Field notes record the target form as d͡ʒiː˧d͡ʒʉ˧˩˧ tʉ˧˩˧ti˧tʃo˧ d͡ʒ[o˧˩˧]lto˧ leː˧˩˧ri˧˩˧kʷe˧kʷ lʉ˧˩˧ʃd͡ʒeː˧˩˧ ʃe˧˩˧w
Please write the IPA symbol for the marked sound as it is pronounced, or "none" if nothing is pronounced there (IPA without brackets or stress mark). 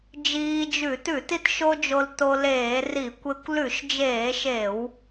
o˧